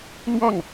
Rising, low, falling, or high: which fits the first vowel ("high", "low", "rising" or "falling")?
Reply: falling